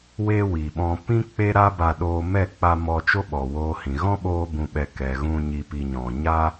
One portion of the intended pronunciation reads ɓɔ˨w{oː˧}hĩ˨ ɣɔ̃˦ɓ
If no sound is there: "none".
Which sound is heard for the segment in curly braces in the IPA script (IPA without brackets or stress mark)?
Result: oː˧